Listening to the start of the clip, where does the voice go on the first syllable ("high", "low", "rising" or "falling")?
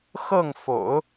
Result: falling